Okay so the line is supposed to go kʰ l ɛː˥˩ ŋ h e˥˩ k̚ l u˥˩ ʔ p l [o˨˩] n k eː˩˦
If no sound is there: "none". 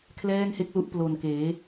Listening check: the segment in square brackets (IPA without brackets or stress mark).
o˨˩